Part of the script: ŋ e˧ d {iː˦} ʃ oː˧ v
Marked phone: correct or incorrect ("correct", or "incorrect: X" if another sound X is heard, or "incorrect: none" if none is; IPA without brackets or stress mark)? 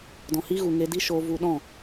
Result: incorrect: i˦